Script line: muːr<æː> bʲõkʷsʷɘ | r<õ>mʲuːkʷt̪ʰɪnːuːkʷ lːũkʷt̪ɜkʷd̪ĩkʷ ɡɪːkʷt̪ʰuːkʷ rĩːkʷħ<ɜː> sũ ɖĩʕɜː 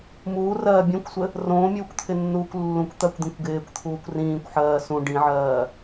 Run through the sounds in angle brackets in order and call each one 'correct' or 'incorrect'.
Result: incorrect, incorrect, correct

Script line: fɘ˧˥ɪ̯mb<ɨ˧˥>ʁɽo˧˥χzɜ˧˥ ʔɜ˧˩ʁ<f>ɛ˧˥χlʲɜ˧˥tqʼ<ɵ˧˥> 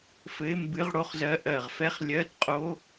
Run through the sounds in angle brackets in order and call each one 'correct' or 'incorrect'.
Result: correct, correct, incorrect

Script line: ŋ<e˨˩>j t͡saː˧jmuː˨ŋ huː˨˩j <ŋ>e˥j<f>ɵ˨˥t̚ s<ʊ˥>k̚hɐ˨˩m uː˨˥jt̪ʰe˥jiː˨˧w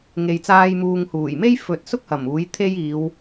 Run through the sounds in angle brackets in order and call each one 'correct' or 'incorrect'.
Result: incorrect, incorrect, correct, correct

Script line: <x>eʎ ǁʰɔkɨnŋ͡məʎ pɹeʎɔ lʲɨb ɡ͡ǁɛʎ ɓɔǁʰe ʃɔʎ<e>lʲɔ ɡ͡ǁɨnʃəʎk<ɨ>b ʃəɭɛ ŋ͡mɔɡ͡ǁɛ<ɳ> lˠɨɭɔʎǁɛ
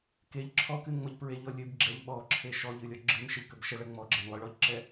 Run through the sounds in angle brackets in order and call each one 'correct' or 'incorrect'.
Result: incorrect, incorrect, incorrect, incorrect

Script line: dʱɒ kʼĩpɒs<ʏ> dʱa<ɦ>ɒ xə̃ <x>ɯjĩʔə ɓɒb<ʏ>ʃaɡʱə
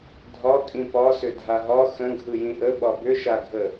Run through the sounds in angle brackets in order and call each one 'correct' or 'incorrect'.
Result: correct, correct, incorrect, correct

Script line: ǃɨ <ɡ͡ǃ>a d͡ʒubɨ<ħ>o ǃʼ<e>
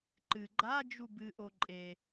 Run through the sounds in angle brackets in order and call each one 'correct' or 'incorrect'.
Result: correct, incorrect, correct

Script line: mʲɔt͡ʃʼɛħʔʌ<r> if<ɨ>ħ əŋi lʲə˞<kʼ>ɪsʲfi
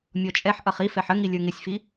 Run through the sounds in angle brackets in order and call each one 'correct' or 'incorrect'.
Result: incorrect, incorrect, incorrect

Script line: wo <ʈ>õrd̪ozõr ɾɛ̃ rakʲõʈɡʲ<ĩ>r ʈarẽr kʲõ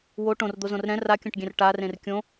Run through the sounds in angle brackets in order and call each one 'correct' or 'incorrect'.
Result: correct, incorrect

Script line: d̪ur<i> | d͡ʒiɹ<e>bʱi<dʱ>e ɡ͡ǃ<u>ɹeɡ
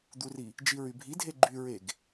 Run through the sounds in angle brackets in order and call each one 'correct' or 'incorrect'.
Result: correct, incorrect, correct, incorrect

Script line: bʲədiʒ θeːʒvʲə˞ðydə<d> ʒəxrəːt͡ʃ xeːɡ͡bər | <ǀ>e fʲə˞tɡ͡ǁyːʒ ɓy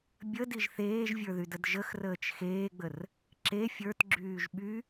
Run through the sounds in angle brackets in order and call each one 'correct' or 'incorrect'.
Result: correct, incorrect

